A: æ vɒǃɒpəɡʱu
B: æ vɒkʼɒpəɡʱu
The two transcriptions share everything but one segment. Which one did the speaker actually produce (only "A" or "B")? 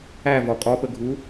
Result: B